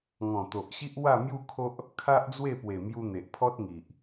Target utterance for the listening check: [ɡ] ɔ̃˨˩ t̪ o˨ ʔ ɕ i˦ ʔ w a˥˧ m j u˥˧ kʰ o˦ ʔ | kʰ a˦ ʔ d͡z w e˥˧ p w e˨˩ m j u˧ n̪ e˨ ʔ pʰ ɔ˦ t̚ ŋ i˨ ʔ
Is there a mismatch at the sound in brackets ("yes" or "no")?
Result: yes